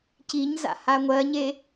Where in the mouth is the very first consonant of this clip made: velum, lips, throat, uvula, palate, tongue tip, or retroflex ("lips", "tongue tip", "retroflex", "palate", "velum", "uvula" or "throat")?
palate